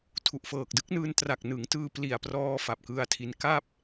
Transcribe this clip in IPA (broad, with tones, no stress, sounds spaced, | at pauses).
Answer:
tʰ u˨˩ ʔ f ɤː˨˩ k̚ d ɯ˦˥ k̚ n ɯː˧ n t r a˨˩ k̚ n ɯ˩˦ ŋ t ɯː˧ p l i˨˩ a̯ p r ɔː˧ f a˨˩ p̚ k ɯ˧ a̯ tʰ i˧ n k a˥˩ p̚